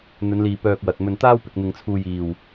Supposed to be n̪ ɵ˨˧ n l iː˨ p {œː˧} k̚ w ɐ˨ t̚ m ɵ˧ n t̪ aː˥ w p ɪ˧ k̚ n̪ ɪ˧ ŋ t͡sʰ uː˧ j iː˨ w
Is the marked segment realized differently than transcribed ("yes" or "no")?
no